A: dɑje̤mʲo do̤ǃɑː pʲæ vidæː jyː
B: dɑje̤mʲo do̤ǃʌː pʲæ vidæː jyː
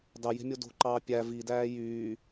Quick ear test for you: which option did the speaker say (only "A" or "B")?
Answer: A